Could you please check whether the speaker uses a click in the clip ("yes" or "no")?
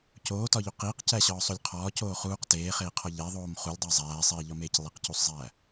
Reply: no